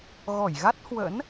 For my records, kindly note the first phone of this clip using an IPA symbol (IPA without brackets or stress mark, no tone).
ɣ